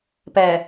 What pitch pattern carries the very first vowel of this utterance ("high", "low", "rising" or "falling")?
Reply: low